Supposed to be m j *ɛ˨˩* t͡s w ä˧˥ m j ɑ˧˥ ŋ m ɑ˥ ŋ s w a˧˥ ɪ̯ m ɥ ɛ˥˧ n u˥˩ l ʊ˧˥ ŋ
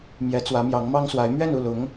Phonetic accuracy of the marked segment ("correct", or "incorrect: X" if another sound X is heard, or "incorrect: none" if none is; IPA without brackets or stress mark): incorrect: ɛ˧˥